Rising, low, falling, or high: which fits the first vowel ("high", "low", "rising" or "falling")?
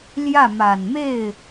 falling